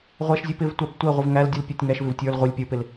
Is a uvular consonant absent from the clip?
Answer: no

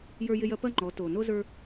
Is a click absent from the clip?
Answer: no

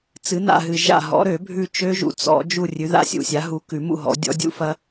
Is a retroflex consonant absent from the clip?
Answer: yes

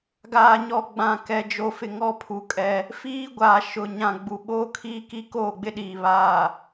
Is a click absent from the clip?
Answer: yes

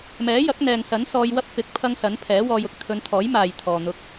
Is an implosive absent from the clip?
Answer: yes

